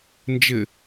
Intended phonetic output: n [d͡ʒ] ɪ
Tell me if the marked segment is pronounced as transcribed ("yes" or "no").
yes